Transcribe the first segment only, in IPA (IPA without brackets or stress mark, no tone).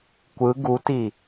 kʷ